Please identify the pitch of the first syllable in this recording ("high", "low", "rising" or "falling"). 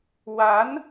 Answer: rising